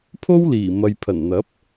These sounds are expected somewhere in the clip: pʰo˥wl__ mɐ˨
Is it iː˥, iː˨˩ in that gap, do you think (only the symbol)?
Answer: iː˨˩